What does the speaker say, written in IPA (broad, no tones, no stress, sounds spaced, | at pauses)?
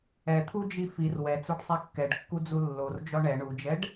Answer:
ɛ t̪ʰ u d͡ʒ i f i r w ɛ t͡s o ɖ sˤ ɛ kː ɛ ɖ kː u d͡z u lː o r d͡ʒ ɔ ɳ ɛ ɳ u d͡ʒ ɛ ɖ